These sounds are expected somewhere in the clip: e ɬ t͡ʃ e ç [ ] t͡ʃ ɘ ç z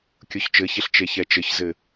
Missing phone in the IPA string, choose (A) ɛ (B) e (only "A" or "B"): A